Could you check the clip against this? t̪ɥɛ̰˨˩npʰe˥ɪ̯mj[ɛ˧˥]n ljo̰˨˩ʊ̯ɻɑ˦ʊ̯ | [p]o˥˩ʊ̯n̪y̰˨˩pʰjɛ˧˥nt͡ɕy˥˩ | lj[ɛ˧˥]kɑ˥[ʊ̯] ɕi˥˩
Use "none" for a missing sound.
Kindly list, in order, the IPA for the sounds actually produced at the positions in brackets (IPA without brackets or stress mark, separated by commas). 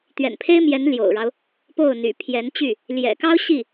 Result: ɛ˧˥, p, ɛ̰˨˩, ʊ̯